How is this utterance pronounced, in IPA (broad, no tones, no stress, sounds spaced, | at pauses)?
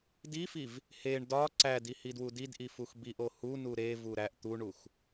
d i f i v | h e ɳ d ɒ ǀ æ d i h i d w u d i d ʔ i f u x b i ʔ o h u n u ɾ e v u ɾ æ ʔ t̪ u ɳ u x